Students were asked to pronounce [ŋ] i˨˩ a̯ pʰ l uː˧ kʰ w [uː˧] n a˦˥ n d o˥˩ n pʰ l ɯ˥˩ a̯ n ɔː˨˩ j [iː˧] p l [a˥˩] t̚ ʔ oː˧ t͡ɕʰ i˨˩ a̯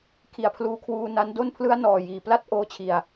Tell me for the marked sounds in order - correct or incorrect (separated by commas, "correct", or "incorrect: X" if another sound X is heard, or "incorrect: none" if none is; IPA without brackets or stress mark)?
incorrect: kʰ, correct, incorrect: iː˩˦, correct